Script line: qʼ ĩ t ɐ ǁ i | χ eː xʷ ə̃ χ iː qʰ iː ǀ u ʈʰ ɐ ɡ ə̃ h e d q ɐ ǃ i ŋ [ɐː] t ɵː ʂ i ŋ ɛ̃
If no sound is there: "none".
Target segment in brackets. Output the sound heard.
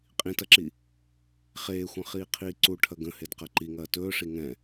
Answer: ɐː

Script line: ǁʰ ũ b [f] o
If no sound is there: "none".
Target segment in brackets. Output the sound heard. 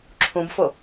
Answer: f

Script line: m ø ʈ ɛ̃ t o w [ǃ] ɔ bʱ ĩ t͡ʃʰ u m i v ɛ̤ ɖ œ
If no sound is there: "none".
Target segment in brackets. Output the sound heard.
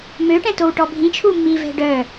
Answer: ʈ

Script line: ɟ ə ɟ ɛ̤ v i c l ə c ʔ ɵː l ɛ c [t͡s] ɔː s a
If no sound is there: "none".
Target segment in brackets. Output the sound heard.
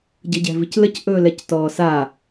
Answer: t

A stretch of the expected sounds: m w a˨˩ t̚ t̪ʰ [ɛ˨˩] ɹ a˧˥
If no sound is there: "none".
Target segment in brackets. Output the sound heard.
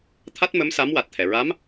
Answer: ɛ˨˩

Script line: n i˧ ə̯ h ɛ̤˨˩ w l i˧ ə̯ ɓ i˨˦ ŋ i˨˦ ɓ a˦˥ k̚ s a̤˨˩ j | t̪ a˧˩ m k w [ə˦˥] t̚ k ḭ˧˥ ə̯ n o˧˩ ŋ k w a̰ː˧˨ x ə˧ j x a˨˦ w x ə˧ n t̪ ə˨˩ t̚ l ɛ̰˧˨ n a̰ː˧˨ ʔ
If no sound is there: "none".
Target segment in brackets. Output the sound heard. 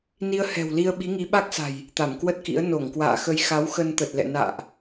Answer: ə˦˥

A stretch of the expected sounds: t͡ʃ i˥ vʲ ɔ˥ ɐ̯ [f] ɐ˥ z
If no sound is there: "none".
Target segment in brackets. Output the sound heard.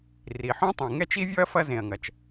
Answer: f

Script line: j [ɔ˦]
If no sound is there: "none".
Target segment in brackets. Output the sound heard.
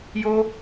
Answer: o˦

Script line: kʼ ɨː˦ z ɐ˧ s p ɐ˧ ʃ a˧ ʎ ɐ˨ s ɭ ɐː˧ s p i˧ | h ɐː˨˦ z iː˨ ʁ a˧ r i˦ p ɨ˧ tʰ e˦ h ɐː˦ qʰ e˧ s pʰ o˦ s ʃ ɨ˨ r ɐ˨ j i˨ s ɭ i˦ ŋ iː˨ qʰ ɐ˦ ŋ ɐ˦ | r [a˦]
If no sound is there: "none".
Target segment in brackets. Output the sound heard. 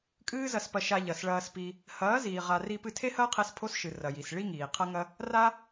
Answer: a˦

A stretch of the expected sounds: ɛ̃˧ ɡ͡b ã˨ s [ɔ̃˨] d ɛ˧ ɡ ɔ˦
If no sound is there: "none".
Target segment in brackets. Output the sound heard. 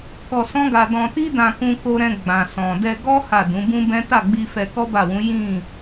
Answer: ɔ̃˨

